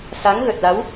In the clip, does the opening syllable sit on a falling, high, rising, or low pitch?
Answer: rising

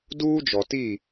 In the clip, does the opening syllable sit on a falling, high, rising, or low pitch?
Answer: high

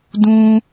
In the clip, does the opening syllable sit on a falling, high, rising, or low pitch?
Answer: high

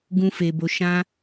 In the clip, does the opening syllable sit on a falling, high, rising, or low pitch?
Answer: high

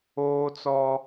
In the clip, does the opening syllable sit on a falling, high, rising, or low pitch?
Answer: high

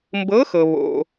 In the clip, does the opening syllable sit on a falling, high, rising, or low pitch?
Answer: rising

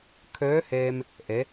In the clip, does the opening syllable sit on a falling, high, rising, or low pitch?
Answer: rising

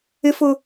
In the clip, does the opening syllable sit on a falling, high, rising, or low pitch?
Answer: high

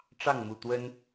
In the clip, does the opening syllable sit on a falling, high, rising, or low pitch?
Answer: falling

